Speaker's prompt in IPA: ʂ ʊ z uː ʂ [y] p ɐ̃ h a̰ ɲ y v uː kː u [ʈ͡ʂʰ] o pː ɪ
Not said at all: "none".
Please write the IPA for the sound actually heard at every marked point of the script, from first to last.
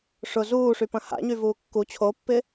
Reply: y, t͡ɕʰ

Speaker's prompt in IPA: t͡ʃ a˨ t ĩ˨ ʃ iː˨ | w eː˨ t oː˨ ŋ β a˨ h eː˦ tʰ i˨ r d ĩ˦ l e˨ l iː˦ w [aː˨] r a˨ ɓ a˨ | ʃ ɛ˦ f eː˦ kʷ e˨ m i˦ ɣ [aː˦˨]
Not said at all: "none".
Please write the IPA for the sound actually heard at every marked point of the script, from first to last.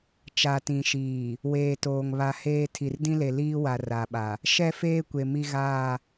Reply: a˨, aː˦˨

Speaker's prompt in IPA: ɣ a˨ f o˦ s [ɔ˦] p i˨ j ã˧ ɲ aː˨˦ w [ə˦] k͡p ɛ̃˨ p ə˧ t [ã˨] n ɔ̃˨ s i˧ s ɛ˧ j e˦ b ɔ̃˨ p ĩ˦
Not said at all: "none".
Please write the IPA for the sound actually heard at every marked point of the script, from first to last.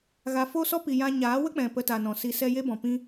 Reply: ɔ˦, ə˦, a˨

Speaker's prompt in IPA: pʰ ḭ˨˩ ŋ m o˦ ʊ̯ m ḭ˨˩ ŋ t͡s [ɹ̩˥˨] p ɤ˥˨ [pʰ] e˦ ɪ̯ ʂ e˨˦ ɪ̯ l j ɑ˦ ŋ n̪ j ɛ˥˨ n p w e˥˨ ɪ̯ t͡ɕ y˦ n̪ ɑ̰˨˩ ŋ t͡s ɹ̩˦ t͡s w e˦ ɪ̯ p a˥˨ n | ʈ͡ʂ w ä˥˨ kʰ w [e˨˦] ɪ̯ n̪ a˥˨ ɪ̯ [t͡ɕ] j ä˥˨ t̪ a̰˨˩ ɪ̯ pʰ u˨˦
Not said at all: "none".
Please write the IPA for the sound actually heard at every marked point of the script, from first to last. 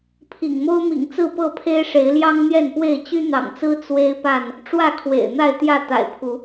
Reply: ɹ̩˥˨, pʰ, ḛ˨˩, t̪

